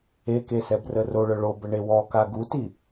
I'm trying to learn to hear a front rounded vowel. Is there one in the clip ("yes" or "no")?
yes